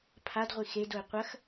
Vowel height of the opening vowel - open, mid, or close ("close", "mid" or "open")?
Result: open